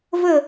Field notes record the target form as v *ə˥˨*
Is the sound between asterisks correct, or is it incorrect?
correct